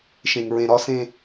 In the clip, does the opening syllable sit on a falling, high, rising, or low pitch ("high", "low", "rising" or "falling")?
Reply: low